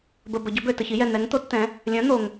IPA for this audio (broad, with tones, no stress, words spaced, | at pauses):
bə˩ bə˩ɟœ˩˥bø˩ tə˩çi˩˥jɛ˩ n̪ɛ˩˥ŋt̪o˩˥t t̪ɛ̃˩˥ | lʲœ̃˩˥n̪o˩ŋ